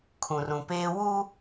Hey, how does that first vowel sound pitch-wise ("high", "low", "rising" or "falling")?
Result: low